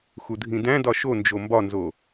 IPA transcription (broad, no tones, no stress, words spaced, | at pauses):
xudʱĩdæ̃dɒ ʃond͡ʒo mbɒnzo